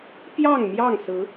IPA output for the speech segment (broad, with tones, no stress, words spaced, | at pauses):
pjɑ˥˨ŋmjɑ˥˨ŋ sɹ̩˨˦